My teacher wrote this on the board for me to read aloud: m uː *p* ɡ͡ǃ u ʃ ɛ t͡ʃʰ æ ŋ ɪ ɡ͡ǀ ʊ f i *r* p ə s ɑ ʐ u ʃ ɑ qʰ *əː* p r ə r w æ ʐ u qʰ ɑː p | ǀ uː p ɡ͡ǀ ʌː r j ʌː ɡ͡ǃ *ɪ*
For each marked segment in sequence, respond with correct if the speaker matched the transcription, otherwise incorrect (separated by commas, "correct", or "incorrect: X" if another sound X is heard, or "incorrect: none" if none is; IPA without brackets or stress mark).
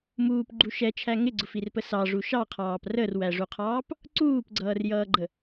correct, correct, incorrect: ɑː, incorrect: ə